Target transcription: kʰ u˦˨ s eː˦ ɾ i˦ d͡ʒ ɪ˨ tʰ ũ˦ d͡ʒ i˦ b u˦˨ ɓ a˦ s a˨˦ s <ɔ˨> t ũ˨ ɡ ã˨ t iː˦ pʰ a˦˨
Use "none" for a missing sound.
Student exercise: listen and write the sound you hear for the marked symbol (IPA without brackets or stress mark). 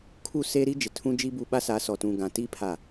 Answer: ɔ˨